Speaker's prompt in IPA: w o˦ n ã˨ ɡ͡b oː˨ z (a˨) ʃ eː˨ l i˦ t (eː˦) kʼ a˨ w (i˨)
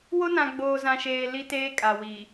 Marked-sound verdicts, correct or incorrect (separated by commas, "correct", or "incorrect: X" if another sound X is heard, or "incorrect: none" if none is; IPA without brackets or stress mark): incorrect: ã˨, correct, correct